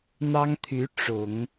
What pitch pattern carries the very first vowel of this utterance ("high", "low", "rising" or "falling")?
high